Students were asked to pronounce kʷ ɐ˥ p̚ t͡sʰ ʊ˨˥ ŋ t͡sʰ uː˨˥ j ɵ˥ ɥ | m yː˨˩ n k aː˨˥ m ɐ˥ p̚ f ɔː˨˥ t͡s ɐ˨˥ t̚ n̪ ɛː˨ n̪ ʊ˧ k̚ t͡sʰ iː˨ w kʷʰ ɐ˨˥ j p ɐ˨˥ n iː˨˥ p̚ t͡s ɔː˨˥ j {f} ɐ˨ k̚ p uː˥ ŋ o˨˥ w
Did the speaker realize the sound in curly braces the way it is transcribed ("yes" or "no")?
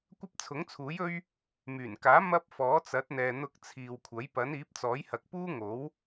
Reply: no